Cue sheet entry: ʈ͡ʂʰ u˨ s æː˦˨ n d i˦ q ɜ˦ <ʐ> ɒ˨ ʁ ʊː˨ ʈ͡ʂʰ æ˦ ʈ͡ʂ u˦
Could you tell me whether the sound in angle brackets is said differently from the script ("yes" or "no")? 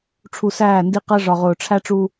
no